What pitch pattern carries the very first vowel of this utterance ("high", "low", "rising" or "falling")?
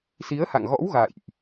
rising